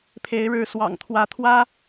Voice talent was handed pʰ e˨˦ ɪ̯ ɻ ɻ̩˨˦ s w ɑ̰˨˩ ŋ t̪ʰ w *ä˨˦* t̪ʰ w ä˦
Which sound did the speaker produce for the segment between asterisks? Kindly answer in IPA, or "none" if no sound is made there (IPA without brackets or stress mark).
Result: ä˨˦